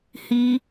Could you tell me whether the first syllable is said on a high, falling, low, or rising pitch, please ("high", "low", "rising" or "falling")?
high